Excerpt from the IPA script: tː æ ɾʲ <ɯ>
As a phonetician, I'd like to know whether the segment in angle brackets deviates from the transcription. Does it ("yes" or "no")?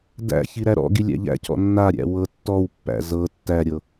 yes